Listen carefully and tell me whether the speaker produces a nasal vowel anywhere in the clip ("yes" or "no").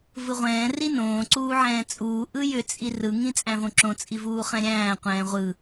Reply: yes